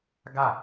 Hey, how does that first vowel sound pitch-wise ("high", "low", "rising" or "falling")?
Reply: falling